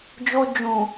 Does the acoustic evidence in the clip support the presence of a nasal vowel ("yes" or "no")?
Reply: yes